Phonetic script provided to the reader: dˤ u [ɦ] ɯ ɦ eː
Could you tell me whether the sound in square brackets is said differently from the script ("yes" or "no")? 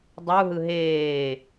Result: no